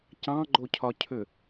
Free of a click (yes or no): no